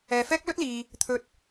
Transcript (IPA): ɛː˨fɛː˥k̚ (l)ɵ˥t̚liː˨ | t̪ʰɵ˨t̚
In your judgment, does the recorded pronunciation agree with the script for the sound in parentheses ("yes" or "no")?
yes